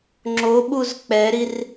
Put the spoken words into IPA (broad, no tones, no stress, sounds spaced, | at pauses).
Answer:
ŋ͡ǁ o ɓ u z k͡p ɛ ɾ i r